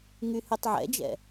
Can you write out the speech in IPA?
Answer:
ŋ y h y tˤ ʕ ɛ̰ d͡ʒ ɛ̰

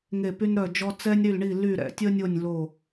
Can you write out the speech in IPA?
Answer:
ŋ e˧˩ p y˧ n ɾ œ˧˩ d͡ʒ ɔ˧ t͡s ɛ˧ nʲ ɾ y˧˩ l ɳ i˧˩ l y˧˩ ɾ ɛ̰˧˩ tʲ ə˧ nʲ o˧˩ nʲ l o˧˩

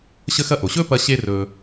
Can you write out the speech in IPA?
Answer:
ɕ ə˧ x ɐ˧ ʔ o˩ ɕ ɵː˥ p ɐ˧ ɕ e˧ r ɵː˩

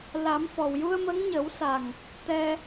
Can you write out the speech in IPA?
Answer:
l a˨˩˦ m f ɔ˨˩ w j u˧ ə̯ m ə˧˥ ŋ ɲ ə˨˩˦ w s a˨˩ ŋ | t̪ ɛ˧

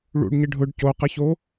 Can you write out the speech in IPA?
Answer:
ɭ ṵ ɖ ɲ ɪ ɖʱ ʊ ɖ c o q ɪ ç o

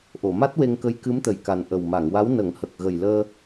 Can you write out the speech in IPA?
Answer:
ʔ o˨˩˨ m a˦˥ t̚ w e˧ ŋ k ə˧˥ j k ɨ˧˥ m t̪ ə˨˩ j k a˨˩ n ʔ ə˨˩ w m a˨˩˨ ŋ w a˧˥ w n ə˨˩˦ ŋ h ə˨˩ k̚ ɣ ə˨˩ j l əː˧

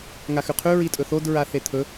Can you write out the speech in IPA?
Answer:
ŋ a x ʉ qʰ ʉ ɹ i tʼ ɵ θ o d ɹ a θ e t̪ʰ ɵ

